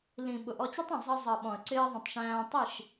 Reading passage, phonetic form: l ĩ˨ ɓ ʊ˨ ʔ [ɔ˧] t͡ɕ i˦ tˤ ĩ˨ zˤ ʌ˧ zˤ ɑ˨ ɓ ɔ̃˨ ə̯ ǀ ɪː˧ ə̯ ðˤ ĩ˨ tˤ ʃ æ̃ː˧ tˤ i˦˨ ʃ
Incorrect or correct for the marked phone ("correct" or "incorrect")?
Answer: correct